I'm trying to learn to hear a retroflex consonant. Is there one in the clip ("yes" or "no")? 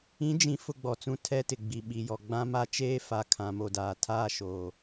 no